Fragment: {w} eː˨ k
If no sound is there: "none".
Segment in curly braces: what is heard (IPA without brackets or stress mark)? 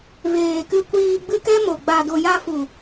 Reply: v